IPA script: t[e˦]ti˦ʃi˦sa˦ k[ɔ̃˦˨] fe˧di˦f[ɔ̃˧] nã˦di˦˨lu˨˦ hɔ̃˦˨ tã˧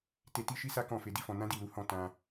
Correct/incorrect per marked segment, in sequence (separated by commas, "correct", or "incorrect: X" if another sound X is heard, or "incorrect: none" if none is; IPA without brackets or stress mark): incorrect: e˧, correct, correct